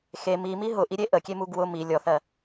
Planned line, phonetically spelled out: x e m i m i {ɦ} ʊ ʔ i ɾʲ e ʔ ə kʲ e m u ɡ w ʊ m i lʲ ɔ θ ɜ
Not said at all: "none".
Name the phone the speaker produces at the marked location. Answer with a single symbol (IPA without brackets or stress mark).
ɦ